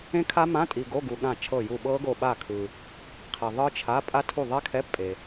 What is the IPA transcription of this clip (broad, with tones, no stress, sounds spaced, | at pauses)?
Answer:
ẽ˦˥ kʰ a˦˥ m ã˧˥˧ tʼ i˨ ɡ o˧˥˧ ɡ u˨ ɠ ã˦˨ t͡ʃʰ ɤ˦˨ j u˦˨ ɓ ɤ˦˥ ɡ o˦˨ ɓ a˦˨ kʰ ɯ˨ | qʰ i˨ ðˤ ɯ˦˥ t͡ʃʰ a˧˥˧ pʼ a˦˥ tʰ u˦˨ ðˤ ɛ˦˥ kʰ ɛ˧˥˧ pʼ e˨